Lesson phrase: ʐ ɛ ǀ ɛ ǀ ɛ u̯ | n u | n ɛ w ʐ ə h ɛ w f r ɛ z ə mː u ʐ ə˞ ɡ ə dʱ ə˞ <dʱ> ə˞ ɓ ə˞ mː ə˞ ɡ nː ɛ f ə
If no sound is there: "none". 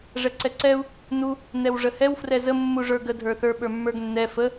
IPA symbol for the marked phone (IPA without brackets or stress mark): θ